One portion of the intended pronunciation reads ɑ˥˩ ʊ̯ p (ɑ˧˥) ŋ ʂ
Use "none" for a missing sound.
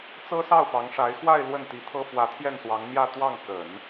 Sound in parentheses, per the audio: ɑ˧˥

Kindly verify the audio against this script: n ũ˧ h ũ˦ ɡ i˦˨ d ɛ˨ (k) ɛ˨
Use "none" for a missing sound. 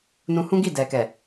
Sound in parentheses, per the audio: k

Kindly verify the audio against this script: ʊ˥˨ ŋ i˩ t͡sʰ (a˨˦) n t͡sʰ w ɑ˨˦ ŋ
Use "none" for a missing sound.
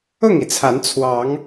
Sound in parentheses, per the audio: a˨˦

